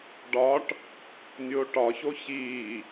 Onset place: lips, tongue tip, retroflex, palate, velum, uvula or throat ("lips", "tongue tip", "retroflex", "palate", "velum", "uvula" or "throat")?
retroflex